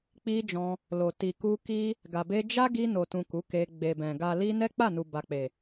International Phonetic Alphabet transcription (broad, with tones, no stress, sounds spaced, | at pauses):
k͡p i˧ d͡ʒ ɔ̃˧ | l o˨ t i˨ k u˧ k i˦ | ɡ a˨ b e˧ d͡ʒ a˦ ɡ i˧ n o˨ t ũ˨ k u˨˦ k e˧ ɡ͡b e˨ b ɛ̃˨ ɡ a˨ l i˧ n ɛ˦ k͡p a˦˨ n u˨ b a˨ k͡p e˨